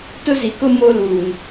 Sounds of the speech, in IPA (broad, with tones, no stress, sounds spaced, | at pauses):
t ʊ˦ z i˨ k ʊ˦ m o˦ l uː˨ n